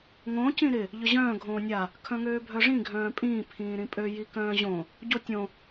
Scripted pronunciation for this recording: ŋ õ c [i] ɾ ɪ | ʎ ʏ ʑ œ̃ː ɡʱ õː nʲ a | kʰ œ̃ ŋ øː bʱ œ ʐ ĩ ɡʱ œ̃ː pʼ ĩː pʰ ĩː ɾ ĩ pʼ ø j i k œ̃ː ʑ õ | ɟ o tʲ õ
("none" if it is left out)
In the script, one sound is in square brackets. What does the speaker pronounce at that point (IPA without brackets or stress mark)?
ĩ